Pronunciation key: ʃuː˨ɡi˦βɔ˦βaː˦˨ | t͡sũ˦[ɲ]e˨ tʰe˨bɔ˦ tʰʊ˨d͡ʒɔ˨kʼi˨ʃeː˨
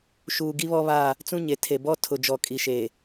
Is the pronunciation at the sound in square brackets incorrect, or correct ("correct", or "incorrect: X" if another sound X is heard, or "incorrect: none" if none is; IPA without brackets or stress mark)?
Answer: correct